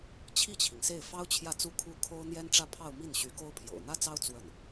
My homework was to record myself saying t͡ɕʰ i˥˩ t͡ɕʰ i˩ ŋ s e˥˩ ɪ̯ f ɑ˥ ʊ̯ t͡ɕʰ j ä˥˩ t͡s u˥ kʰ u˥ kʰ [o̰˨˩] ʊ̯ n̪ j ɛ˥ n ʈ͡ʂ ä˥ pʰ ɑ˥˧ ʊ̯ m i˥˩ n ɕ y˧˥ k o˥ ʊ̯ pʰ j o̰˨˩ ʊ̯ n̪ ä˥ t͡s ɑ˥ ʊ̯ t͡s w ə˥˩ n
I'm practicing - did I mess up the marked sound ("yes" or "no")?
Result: yes